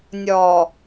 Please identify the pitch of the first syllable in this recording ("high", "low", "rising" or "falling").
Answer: low